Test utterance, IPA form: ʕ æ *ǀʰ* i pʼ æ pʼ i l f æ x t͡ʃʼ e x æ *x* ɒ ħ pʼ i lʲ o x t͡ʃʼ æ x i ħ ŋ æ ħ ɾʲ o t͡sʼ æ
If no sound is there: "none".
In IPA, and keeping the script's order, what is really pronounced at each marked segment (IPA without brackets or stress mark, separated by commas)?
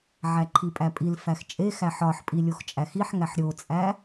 ǃʰ, ħ